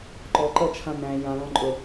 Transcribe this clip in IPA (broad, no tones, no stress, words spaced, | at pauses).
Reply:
ǃɔǃɜt͡ʃʰã næ̃ jãlɔ̃ ǃʼɵ